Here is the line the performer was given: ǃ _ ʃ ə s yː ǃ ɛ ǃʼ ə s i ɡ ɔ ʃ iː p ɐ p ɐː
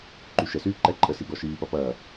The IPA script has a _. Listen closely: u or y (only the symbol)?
y